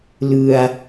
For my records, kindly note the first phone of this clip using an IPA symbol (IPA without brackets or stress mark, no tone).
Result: l